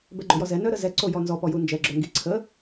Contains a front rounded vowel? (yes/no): yes